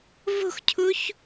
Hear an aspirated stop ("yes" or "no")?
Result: yes